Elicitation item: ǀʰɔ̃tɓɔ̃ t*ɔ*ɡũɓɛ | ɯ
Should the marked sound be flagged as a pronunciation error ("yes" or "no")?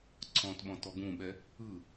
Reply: no